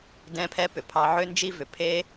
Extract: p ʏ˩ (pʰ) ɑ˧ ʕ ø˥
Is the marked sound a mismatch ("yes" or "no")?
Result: no